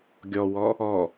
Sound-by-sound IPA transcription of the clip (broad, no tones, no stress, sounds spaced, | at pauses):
ɡʲ ɔ w ɔ | ɔ